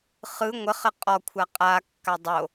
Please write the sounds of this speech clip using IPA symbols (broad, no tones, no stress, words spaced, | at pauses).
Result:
χɯ ŋʷəχə qʼɔkʷʰa qʼakːa dˤo